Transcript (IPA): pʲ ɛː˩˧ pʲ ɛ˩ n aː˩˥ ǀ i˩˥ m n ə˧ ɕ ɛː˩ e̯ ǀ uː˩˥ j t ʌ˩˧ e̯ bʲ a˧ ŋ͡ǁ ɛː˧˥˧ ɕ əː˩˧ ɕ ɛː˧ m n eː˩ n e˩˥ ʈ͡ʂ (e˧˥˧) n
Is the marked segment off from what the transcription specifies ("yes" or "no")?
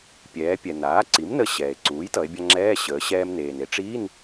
yes